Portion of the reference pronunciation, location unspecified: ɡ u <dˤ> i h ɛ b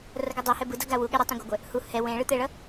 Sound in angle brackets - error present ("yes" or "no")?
no